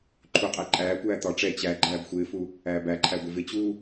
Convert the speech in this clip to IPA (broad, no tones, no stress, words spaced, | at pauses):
ǃʰuqʼæ ǃʼæːkʷæː t̪ɒ ʈ͡ʂɛ t͡ɕæ ɡ͡ǃæːbxʷɪːfu | æːbæǃʰæ ɡʷɪvɪt͡ɕuː